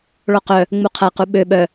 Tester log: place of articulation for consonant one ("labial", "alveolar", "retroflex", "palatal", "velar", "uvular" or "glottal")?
retroflex